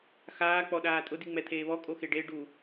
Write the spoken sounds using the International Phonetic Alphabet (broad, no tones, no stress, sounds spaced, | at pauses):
x aː k͡p ɔ ɗ aː tʼ ʊ d i ŋ͡m ɛ t̪ʰ eː β ɔ kʼ o x e ɖ e ɖ u